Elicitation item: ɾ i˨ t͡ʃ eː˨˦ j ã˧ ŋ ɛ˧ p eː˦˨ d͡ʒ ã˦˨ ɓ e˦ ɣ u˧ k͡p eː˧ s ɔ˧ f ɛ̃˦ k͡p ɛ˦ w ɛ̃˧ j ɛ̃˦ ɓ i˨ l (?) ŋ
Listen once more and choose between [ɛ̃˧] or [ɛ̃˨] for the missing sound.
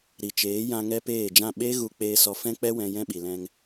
ɛ̃˧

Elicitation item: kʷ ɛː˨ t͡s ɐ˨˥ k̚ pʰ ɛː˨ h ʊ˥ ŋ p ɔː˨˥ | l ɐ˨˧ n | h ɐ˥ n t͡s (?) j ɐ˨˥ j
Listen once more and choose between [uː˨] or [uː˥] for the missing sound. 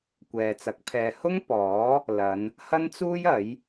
uː˥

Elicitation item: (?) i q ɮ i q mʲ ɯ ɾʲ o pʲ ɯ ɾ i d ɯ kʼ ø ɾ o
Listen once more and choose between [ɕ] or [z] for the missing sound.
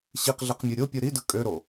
ɕ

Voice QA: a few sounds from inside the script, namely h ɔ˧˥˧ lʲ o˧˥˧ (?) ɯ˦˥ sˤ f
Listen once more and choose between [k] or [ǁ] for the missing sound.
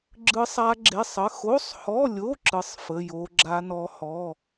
ǁ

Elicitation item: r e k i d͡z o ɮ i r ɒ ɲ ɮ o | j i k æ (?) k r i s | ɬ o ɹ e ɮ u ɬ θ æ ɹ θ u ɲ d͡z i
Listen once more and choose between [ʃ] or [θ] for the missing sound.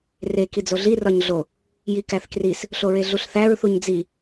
θ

